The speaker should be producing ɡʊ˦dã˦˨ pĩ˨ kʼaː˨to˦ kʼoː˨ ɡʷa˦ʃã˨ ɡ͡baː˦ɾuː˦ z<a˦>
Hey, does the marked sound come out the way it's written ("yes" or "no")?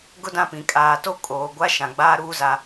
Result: yes